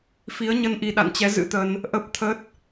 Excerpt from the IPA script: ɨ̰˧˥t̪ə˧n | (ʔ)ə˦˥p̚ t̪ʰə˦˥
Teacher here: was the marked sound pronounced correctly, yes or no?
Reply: yes